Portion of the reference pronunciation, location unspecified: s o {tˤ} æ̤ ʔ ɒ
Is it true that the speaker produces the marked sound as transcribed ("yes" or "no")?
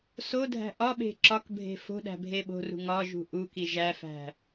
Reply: no